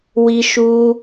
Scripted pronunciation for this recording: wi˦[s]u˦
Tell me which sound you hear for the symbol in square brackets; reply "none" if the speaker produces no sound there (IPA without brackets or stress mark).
ʃ